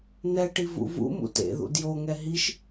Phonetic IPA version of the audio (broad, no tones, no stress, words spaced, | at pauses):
n̪ɛʈi vṵvṵmṵ tḛðṵ djoŋɛ ɦiʃ